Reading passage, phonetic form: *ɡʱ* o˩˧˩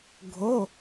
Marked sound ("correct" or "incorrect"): correct